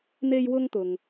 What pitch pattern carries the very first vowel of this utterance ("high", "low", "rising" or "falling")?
high